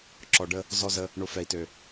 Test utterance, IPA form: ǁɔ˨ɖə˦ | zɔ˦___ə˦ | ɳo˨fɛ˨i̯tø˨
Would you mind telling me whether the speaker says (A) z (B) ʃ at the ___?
A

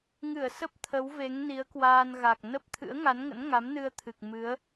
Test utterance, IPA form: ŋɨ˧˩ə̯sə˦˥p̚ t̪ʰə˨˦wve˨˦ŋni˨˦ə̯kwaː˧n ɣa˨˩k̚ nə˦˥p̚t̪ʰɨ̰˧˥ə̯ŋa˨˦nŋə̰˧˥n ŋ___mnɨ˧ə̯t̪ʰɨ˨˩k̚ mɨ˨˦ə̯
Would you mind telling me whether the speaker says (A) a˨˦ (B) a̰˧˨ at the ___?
A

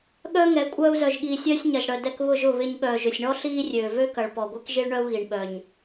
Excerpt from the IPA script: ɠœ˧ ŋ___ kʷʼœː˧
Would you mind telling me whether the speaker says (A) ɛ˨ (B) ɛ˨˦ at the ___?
B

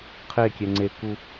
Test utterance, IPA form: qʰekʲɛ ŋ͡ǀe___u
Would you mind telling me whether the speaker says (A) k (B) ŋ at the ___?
A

